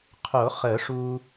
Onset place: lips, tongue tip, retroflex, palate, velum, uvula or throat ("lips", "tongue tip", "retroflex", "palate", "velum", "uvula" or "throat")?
uvula